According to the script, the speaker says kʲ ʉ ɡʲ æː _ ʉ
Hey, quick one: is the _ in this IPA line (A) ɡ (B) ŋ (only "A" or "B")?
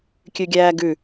A